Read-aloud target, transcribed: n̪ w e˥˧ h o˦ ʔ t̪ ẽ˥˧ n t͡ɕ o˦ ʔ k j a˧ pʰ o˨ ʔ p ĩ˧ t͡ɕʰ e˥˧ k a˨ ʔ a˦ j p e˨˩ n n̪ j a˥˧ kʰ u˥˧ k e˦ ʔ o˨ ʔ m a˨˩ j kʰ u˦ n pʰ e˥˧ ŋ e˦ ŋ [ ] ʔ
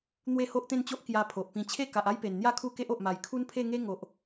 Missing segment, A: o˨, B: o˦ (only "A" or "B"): A